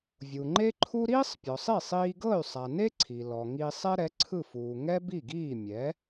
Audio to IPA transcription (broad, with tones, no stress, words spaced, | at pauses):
vʲu˩ŋ͡ǃe˥ǃʰu˥ ɾiː˥sˤpʲɔ˩sˤi˥˩ sˤiː˧ɡɤ˥˩y̯sˤa˩ne˥ ǀʰi˩lɔ˩ŋi˧sˤɛ˥ ɾɛ˩˥ǀʰɯ˥˩fuː˩ ŋɛ˥bi˥˩ɡiː˥˩ mʲɛ˩˥